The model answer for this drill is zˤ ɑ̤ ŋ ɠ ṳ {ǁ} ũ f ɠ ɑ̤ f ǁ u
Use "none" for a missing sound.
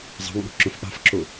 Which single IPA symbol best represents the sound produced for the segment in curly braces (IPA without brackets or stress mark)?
ǁ